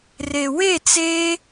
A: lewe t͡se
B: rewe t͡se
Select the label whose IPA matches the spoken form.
B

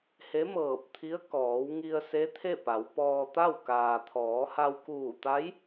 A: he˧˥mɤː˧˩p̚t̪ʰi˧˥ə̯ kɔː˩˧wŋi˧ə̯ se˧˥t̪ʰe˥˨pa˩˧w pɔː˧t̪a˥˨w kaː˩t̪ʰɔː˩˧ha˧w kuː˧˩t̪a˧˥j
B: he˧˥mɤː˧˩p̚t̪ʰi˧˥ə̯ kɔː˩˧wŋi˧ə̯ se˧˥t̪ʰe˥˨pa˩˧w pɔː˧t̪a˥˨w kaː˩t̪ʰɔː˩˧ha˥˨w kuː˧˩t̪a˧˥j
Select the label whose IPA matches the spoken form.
A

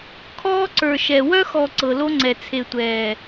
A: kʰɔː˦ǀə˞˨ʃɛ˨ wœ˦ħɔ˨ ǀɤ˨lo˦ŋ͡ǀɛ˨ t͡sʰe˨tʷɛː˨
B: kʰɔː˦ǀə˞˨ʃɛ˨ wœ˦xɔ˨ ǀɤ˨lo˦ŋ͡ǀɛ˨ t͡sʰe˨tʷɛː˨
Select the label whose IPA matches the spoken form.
B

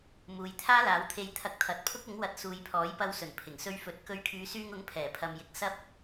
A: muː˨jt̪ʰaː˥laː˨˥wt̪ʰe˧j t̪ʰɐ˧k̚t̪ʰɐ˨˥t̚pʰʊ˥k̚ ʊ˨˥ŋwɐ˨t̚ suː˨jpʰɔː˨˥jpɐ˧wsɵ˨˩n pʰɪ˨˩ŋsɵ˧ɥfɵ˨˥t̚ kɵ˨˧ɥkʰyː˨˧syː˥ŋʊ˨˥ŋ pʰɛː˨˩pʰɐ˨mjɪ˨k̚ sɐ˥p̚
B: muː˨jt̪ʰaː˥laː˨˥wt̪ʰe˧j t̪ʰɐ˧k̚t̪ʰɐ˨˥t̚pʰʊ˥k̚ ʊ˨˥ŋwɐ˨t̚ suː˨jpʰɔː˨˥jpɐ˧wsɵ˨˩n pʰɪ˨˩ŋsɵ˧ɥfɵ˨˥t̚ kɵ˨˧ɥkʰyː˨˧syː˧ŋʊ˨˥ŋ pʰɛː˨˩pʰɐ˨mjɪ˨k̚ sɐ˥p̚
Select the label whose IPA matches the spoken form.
B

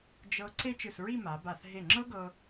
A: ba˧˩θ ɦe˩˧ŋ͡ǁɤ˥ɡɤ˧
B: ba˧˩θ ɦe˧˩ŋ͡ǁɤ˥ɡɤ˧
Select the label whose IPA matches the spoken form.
B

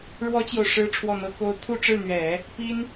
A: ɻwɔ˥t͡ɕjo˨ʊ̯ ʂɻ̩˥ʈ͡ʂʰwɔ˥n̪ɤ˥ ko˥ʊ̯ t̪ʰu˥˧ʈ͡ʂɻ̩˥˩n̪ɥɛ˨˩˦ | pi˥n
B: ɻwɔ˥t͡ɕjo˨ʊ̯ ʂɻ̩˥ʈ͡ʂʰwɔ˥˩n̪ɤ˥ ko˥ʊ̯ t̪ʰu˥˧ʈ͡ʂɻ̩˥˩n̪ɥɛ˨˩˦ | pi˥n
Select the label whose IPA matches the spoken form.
B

